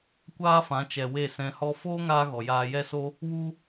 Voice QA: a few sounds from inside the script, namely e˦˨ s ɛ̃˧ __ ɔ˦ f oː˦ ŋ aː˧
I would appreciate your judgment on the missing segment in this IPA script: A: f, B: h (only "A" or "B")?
B